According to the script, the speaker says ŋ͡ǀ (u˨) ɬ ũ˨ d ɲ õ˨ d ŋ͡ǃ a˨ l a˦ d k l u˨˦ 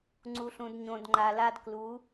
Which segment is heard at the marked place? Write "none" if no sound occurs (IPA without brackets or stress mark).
u˨